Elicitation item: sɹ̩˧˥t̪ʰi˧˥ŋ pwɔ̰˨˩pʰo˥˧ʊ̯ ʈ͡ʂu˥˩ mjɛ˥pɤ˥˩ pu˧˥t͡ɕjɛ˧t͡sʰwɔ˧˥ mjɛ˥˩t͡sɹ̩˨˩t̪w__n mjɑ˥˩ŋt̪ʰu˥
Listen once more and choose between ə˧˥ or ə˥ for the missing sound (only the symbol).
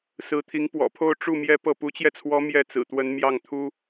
ə˧˥